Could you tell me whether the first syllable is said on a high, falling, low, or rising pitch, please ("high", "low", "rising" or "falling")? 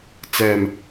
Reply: low